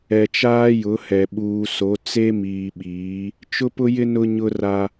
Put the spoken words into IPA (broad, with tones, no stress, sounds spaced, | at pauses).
ɛ˨ t͡ʃ aː˦ j ʊ˨˦ h ɛ˨ ɓ uː˨ s o˨˦ t͡s e˦ m iː˨ ɓ iː˨˦ | t͡ʃ ʊ˦ p ʊ˦ j ɪ˦ n ʊ˦ ɲ ʊ˦ r a˦